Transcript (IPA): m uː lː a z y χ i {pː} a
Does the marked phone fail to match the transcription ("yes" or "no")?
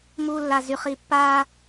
no